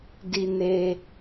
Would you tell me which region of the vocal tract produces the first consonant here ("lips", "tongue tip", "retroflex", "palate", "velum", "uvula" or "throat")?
tongue tip